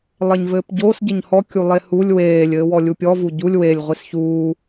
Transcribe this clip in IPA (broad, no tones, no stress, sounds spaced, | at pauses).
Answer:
lˠ e ɲ v ɘː p ɟ o s ɟ ɘ ɲ h ɔ kʲ u lˠ e h u lʲ w eː lʲ ɘː w ɔ lʲ u pʲ ɔ v u ɟ u lʲ w e lʲ ʁʷ i s ç uː